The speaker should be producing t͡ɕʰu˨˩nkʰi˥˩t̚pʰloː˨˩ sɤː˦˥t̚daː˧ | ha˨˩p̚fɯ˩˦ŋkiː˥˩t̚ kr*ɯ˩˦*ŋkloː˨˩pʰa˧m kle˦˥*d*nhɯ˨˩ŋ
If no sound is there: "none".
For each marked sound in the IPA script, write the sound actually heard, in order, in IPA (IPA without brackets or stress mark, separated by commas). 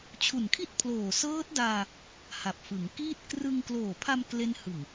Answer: ɯ˧, none